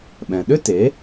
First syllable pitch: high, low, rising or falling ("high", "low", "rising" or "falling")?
low